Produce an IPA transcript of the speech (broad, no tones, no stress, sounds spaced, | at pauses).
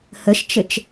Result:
h ə ʃ t͡ʃ ɘ t͡ʃ